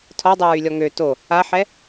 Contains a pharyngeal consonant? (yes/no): yes